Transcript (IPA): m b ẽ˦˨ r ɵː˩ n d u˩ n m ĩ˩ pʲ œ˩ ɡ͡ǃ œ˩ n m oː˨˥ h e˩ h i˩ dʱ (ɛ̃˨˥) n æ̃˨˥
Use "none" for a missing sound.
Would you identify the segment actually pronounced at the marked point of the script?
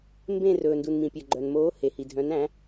œ̃˨˥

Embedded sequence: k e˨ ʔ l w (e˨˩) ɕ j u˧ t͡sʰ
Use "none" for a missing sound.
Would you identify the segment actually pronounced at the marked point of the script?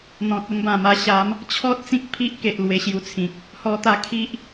e˧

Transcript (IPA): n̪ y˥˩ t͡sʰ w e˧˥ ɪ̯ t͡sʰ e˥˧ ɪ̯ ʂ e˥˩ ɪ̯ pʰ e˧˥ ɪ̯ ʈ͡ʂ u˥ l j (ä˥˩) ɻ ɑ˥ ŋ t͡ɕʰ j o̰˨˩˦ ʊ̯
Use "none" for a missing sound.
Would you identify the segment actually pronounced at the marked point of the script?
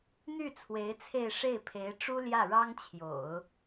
ä˥˩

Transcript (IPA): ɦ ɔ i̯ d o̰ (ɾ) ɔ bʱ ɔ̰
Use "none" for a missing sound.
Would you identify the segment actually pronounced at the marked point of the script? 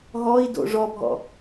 ʐ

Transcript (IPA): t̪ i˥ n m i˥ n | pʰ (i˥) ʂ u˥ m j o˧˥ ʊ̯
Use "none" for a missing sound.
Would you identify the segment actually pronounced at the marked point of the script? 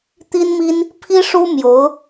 i˥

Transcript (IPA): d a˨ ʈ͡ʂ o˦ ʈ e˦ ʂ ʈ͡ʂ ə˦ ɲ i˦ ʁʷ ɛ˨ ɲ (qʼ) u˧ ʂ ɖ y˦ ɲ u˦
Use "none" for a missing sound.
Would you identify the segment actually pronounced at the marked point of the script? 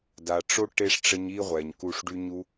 k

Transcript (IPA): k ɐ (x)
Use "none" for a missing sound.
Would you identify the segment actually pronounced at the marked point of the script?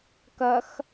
x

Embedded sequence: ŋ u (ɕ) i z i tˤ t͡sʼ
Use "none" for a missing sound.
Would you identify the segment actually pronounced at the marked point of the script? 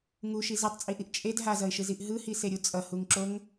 ʃ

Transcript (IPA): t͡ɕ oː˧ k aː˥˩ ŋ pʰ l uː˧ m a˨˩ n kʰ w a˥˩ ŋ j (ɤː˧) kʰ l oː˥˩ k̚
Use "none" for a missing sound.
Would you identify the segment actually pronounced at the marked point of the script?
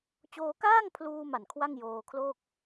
oː˧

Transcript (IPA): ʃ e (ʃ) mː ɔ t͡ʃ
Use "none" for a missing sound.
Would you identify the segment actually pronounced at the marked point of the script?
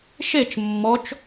t͡ʃ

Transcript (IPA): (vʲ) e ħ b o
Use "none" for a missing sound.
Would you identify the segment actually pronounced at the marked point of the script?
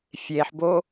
fʲ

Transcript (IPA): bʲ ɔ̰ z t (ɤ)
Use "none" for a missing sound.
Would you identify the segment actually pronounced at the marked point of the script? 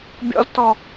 ɔ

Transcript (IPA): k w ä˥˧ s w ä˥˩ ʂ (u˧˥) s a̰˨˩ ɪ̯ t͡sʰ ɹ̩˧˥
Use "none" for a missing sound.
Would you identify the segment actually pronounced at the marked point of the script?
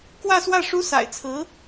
u˥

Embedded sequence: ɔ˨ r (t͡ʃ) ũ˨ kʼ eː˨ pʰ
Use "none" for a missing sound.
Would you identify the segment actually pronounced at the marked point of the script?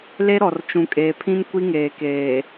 t͡ʃ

